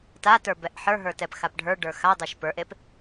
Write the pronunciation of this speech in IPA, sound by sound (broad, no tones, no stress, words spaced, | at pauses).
tatə˞ bɛʔħə˞ɦə˞tɛp xapɖʱə˞ ɖə˞xadˤɛʃ pə˞ʔep